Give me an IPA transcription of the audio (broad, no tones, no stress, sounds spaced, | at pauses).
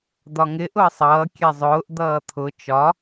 d̪ ɒ ŋ ɪ ʔ ʊ ə̯ sˤ ʌː kʲ ɛ zˤ ʊː ʔ d̪ ʌː t̪ʰ ʊ t͡ʃ ɒ